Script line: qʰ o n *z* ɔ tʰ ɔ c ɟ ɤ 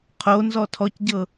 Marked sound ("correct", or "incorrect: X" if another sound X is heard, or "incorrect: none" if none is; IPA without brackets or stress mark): correct